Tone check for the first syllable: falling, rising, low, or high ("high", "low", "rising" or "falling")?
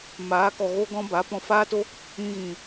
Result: rising